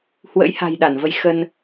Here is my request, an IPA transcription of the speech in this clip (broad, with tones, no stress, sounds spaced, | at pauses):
h w ə̰˧˥ j h a̤˨˩ j ɗ a˧˩ n v ə˧ j x ə˧ n